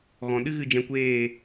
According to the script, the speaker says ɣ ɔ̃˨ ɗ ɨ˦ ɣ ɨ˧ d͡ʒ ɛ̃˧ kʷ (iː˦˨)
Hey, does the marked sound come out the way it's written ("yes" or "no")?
no